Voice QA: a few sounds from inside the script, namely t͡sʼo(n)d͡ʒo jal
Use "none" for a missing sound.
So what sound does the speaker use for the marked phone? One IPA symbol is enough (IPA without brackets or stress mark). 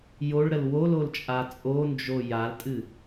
n